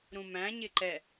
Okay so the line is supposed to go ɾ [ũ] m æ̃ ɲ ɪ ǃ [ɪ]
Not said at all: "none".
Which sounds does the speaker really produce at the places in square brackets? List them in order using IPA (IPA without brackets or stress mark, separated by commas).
ũ, ɛ